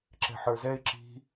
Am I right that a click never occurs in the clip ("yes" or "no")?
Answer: no